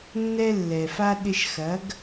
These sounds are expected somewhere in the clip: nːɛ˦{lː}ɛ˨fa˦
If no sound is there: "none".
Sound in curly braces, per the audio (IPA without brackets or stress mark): lː